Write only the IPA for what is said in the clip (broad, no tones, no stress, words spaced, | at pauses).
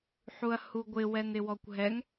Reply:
ħuɐ̯huɡʷɪ wɛnɪwɔkʷɦɛŋ